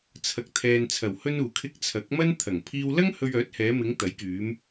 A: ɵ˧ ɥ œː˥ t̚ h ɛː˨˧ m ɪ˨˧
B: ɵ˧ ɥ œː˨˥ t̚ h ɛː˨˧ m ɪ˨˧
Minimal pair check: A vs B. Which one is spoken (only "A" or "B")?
B